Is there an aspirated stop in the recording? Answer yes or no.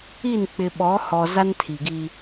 yes